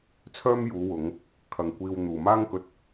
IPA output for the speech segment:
t͡sʰ œː˥ m j uː˨˧ w ʊ˨˧ ŋ | kʰ ɐ˧ ŋ kʷ iː˧ w n̪ uː˨ m aː˥ ŋ k ɵ˧ t̚

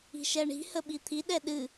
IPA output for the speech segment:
i̤ ʃ ɛ ɳ i̤ h ə ɓ i t̪ʰ i ɗ ɛ ɗ ɨ

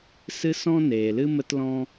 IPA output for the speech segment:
s ɨ˦ s ɔ̃˦ n eː˨ l ɨ˦ m ə˦ t l ɔ̃˦

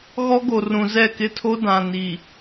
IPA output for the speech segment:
ɣ ɔ˦ ɡ o˨ r ũ˨ z ɛ˦˨ k ɪ˦ tʰ o˦ d ã˨ n i˨

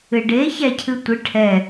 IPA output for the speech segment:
ɨ ɖ e ç æ cʰ ɨ tʷ ɨ ʈʰ ɛ

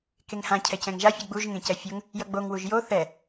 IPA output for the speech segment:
k e ŋ h ã cʰ ɛ c ɛ̃ ŋ ʒ a fʲ ɯ ɡ͡b u ʒ ŋ ẽ c ɛ fʲ o ŋ | j ʌ ɡ͡b o ŋ w u ʒ j o θ ɛ

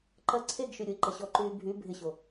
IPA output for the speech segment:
ǃ ɐ ǀʰ e ɡ ʃ y ɾʲ o i̯ ǃ ɐ ɕ ɔ ǃ yː bʱ y bʱ ɪ ɕ o

